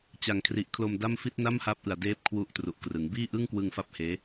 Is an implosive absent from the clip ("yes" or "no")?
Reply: yes